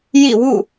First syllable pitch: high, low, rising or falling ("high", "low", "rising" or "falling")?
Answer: falling